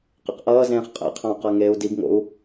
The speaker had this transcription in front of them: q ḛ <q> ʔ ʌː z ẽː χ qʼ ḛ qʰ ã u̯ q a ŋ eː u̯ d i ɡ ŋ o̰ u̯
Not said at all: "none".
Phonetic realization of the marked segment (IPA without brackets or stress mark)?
q